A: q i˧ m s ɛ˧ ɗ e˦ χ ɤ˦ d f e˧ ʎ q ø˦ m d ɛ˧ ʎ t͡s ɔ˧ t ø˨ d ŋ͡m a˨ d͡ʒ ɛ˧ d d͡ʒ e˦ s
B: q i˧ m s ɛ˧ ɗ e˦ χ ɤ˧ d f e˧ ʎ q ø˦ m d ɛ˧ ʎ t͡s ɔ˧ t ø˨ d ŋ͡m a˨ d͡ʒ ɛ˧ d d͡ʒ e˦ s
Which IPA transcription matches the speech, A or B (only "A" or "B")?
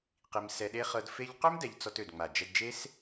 A